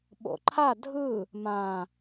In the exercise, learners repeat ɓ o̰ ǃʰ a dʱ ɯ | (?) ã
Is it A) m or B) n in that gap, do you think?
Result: A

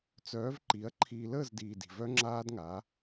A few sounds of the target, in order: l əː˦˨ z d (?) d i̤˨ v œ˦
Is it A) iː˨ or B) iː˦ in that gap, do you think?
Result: A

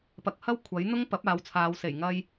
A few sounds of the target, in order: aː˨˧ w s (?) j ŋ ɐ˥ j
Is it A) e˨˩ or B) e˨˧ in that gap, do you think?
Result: A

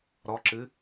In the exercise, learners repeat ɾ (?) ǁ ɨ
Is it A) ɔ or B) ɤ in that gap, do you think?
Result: A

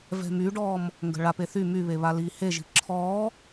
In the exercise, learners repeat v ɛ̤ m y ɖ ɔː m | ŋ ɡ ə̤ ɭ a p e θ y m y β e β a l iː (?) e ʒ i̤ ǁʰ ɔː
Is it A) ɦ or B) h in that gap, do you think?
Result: B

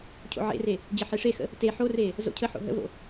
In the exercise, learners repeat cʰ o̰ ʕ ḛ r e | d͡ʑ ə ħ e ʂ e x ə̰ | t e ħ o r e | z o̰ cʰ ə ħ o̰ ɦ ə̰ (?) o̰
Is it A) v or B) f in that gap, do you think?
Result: A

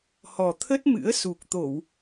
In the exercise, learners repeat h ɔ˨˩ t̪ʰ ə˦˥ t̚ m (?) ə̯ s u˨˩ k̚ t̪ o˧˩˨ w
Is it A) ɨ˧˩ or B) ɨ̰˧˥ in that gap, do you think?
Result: B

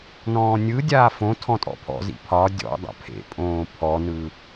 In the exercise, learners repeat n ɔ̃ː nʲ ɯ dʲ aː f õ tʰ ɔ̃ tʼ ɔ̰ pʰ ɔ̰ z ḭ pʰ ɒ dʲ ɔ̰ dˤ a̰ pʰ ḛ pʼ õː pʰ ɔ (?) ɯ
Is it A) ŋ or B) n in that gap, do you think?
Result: B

